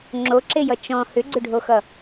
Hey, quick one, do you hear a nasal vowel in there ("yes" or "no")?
yes